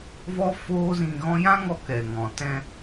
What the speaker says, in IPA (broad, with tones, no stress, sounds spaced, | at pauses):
v ɔ˦ f oː˦ z ĩ˧ ɣ ɔ̃˦ j ã˦ ŋ ɔ˧ k ɛ˨ ŋ ɔ̃˨ t ɛ̃˧